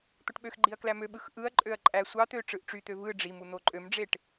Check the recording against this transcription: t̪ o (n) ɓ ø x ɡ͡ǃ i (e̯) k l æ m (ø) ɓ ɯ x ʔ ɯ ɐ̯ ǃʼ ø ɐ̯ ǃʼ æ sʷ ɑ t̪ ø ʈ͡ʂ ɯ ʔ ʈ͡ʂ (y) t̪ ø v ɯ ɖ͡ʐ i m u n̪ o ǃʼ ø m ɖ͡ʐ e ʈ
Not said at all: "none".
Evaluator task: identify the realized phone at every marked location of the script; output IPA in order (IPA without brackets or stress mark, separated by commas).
ʈ, ɐ̯, ø, y